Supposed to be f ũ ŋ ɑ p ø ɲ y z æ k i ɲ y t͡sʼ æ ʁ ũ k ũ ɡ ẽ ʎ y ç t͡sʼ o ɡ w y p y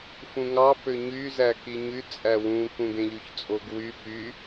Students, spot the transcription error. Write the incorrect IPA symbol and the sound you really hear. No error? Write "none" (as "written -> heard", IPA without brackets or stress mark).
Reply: ʁ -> w